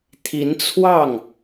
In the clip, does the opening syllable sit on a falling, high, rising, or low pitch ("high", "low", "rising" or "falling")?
rising